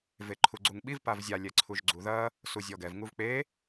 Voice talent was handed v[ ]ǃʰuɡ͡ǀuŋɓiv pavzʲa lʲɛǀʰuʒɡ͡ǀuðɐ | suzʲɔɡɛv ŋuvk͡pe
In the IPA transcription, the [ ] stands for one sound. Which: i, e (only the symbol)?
e